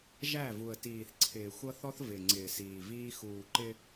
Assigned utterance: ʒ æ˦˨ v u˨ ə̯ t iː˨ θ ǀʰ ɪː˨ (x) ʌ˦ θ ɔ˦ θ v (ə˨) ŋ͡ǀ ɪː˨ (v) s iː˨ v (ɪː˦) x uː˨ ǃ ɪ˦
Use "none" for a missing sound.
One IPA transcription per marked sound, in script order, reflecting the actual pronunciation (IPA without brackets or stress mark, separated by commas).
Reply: xʷ, ɪ˨, none, iː˦